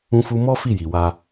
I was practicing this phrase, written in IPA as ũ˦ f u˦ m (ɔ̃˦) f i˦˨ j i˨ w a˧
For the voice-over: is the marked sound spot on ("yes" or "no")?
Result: no